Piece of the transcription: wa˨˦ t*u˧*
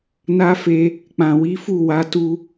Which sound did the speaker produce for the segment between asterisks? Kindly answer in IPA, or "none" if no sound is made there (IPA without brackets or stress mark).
u˧